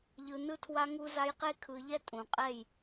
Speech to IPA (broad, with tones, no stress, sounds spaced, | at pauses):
ʎ ɯ˧ n ɯ˦ tʰ w a˦ ŋ u˦ z a˦ j q e˦ kʰ ɯ˧ ʎ ɛ˦ tʼ ũ˨ qʼ ɛ˦˨ j